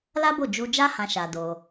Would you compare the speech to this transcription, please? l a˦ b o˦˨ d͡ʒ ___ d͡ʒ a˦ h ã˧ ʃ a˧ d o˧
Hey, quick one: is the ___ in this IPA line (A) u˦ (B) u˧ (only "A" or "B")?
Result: B